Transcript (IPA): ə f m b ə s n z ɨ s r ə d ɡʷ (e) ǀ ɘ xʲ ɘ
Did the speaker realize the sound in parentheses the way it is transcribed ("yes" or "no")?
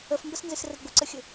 no